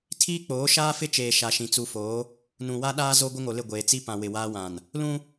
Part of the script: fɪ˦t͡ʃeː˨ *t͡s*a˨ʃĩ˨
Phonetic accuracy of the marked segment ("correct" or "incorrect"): incorrect